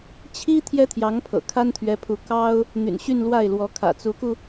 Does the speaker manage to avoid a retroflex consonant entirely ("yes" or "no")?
yes